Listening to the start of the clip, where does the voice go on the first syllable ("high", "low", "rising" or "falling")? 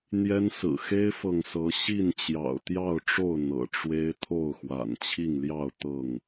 high